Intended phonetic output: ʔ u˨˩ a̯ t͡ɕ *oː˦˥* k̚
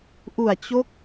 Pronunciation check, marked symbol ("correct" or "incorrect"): incorrect